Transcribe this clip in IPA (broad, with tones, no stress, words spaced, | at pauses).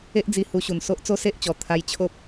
e˦ʔd͡zi˧ hu˧ɕu˨˩nso˦ʔ t͡so˦se˦ʔt͡ɕɔ˨˩ t̪ʰa˧jt͡ɕʰo˦p̚